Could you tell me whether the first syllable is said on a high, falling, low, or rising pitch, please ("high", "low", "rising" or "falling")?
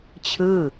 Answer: falling